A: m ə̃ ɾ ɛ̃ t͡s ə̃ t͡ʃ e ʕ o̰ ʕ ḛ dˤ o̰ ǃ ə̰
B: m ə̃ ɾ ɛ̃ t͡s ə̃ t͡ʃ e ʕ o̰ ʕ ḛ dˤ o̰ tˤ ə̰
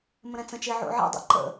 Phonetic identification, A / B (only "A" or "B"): A